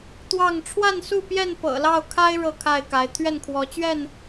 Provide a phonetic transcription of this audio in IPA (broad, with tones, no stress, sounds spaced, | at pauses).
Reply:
t̪ w ɑ˥˨ ŋ ʈ͡ʂʰ w a˥˨ n s u˥˨ p j ɛ˥˨ n p ɤ̰˨˩ l ɑ˥˨ ʊ̯ kʰ a˦ ɪ̯ ɻ ɤ˥˨ kʰ a˥˨ ɪ̯ k a˨˦ ɪ̯ t̪ʰ ɥ ɛ˥˨ n kʰ w ɔ˨˦ t͡ɕ ɥ ɛ˥˨ n